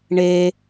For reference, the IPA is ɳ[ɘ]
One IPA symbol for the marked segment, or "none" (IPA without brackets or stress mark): e